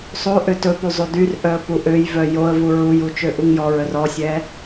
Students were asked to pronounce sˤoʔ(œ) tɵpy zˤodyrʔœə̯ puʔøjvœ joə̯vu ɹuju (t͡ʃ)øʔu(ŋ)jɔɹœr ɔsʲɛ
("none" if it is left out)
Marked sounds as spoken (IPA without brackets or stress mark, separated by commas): ø, t͡ʃ, ŋ